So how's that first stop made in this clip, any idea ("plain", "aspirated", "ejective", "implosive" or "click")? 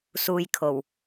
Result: aspirated